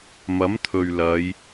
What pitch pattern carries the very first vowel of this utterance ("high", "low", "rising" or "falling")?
rising